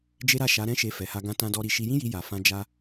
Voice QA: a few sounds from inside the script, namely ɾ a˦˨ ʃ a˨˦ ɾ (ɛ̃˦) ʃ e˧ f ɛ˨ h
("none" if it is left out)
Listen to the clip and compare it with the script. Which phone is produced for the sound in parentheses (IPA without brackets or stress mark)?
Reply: ɛ̃˦